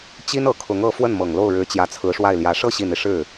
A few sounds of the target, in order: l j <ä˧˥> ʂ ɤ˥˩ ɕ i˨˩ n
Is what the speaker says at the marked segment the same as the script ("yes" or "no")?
yes